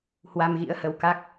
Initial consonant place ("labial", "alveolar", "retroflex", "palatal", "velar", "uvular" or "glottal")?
glottal